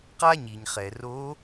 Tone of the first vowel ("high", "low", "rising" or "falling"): high